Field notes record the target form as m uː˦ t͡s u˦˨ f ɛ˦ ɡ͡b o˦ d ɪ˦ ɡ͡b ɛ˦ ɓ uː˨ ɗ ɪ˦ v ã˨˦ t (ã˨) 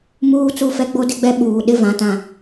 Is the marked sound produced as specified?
yes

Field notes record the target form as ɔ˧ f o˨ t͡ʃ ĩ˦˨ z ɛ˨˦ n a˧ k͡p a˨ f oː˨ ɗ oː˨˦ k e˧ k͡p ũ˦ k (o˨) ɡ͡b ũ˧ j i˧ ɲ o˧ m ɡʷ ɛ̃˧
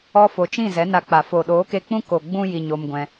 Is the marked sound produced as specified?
yes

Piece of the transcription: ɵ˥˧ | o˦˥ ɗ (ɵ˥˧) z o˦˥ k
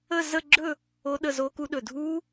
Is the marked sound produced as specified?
no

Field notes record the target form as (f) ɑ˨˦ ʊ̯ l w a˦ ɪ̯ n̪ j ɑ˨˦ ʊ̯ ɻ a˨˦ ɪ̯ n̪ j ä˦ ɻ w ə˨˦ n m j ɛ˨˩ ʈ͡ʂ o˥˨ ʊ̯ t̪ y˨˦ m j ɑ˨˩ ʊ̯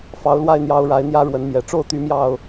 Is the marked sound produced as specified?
yes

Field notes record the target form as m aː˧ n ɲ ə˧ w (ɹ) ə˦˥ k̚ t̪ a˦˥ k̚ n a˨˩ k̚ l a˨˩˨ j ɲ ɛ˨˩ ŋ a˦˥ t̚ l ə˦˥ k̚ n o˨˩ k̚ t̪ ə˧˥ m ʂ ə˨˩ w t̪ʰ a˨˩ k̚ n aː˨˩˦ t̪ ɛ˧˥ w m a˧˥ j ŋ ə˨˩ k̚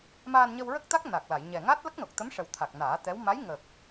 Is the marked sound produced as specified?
yes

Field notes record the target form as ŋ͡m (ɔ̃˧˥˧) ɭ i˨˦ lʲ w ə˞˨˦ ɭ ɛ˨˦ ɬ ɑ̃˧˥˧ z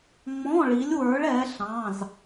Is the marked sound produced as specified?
yes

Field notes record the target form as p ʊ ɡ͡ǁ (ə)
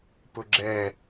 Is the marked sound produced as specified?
no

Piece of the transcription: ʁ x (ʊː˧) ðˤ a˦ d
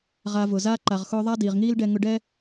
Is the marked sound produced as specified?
yes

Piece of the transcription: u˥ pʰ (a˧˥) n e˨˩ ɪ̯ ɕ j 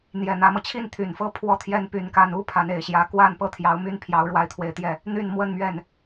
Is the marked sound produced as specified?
yes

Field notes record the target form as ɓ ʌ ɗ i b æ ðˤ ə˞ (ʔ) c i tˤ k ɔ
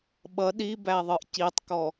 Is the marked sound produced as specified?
yes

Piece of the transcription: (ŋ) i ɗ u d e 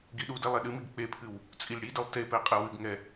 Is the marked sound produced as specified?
no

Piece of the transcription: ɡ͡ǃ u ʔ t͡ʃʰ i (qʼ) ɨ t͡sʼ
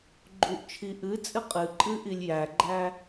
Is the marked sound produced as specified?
no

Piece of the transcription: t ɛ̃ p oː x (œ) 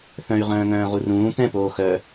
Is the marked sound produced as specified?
yes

